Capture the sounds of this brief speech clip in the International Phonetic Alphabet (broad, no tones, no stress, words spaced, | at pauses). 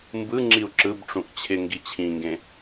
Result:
mbɯŋ͡ǁiu̯ ǁɯbʈ͡ʂũʔ t͡ɕʰɪŋɡi t͡ɕʰĩŋɡẽ